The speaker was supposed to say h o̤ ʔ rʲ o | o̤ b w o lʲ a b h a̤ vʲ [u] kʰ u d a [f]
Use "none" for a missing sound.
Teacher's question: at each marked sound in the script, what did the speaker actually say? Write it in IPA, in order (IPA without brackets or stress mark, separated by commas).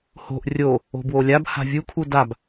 u, b